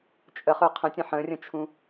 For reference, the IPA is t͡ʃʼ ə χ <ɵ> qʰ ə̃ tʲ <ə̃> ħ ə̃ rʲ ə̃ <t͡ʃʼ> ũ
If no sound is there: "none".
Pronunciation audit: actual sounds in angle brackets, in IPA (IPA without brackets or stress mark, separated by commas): ɵ, ə̃, t͡ʃʰ